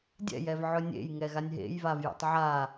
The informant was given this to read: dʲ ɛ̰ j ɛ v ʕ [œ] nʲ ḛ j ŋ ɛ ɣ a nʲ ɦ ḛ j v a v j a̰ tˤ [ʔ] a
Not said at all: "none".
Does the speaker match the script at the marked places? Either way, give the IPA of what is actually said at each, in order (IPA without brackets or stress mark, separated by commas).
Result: ɵ, ʕ